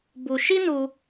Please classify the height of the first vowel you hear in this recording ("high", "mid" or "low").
high